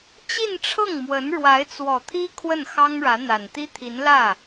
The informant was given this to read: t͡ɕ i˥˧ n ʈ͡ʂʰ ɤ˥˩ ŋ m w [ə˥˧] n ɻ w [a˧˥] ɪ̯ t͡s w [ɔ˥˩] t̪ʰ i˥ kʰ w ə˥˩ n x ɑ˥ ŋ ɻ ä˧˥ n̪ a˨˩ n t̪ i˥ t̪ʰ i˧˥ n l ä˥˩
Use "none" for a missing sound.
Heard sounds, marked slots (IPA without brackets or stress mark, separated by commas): ə˧˥, a˧˥, ɔ˨˩